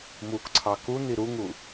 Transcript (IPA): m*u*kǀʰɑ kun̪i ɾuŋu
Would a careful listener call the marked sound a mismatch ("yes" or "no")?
no